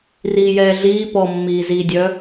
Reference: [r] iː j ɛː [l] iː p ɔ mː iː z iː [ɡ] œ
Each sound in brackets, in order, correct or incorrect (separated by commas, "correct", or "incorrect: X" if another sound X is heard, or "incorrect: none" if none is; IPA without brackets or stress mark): correct, incorrect: ɮ, incorrect: dʲ